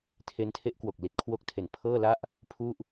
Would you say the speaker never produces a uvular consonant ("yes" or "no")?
yes